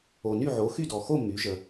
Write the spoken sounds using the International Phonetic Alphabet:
o˨ny˥˨ ʕo˩˥xy˥˨ dɔ˨ xo˥˨ my˩˥ʒə˨

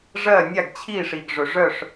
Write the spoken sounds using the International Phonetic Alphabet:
ʐɜ˥˩nʲa˥˩ɡt͡ɕʰi˥˩ʂi˩ɡ ʐɵ˩ʐœ˥˩ʂ

